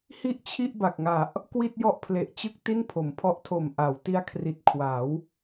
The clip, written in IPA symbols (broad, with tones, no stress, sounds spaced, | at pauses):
h i˥˩ ʔ t͡ɕʰ i˥˩ ʔ b a˨˩ k̚ ŋ a˨˩ ʔ | k w i˥˩ t̚ j ɔ˥˩ ʔ pʰ l e˨˩ ʔ t͡ɕ ɯ˥˩ k̚ t i˥˩ n pʰ o˩˦ m pʰ ɔ˦˥ ʔ tʰ o˨˩ m ʔ a˩˦ w t i˦˥ a̯ kʰ r i˨˩ t̚ kʰ w a˩˦ w